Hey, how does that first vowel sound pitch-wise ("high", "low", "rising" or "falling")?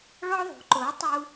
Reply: high